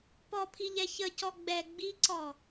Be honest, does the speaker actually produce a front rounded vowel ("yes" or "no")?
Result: no